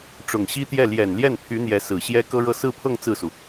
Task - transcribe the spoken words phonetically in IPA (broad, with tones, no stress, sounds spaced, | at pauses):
ʈ͡ʂ ʊ˨˩ ŋ ɕ i˥ t̪ j ɛ˥˩ l j ɛ˨˩ n l j ɛ˥˩ n pʰ y˧˥ n̪ j ɛ˧˥ s ɹ̩˨˩ ɕ j ɛ˥ k ɤ˥ ɻ ɤ˥˧ s ɹ̩˥˧ pʰ ɤ˥˧ ŋ t͡s ɹ̩˥˩ s u˩